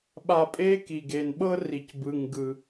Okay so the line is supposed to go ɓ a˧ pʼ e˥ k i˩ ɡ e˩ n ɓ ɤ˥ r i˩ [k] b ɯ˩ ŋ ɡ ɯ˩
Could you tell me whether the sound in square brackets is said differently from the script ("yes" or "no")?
yes